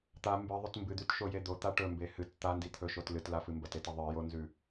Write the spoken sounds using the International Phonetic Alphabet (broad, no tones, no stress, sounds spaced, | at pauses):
t̪ a m b ɨ ðˤ ɵ t m b ɨ d̪ ʉ t ʃ o j e d̪ o t̪ a ʈ ɵ m b e h ɨ t t̪ a n d i t̪ʰ ɵ ʃ o t l ɨ t l a f ɨ m b ɐ t e t ɐ ðˤ ɨ j o n z ʉ